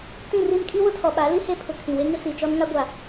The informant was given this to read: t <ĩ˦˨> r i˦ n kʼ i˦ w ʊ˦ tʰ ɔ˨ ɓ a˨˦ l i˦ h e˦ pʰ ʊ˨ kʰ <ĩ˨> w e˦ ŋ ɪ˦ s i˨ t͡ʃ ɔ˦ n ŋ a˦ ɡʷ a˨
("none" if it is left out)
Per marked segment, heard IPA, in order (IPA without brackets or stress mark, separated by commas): ĩ˦˨, ĩ˨